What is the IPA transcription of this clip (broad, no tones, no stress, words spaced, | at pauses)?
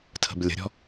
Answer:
tʰə̤blʲə̤ɾʲɔ̤